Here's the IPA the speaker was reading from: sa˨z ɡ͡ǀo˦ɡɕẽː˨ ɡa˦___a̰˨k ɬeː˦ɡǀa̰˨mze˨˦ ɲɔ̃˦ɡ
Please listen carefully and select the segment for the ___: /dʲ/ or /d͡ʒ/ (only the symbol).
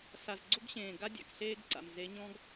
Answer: dʲ